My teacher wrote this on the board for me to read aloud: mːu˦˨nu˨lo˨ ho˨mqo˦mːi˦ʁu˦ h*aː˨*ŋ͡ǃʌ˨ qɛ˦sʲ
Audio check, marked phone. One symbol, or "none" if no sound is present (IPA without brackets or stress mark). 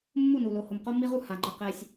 a˨